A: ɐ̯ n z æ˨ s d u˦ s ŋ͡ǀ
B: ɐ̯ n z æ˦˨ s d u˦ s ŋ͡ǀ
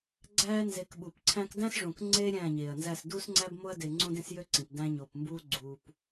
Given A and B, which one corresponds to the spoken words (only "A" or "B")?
B